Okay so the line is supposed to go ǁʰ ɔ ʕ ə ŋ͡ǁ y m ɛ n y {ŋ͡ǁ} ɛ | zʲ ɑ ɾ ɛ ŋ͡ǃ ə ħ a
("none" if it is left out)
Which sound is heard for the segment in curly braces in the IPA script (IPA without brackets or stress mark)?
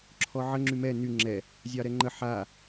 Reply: ŋ͡ǁ